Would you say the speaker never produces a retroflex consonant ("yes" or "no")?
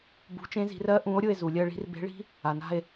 no